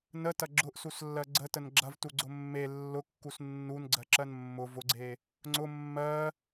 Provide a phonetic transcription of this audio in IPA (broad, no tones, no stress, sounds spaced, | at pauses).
n ə t ɐ ɡ͡ǁ ʊ ʔ s u s lː ɜ ɡ͡ǀ ə t ə n ɡ͡ǁ ɐ v t u ɡ͡ǀ ʊ mː e lː ʊ kː u s nː u n ɡ͡ǀ ɜ ǁ ɜ n mː ʊ v ʊ ɡ͡ǀ e | ŋ͡ǀ ʊ mː ɜ